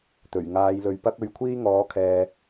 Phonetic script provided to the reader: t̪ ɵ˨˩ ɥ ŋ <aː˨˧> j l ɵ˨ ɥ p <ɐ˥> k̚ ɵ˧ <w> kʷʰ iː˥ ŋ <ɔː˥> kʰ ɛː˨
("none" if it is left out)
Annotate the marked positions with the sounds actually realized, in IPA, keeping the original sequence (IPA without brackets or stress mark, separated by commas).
aː˨˧, ɐ˥, ɥ, ɔː˨˥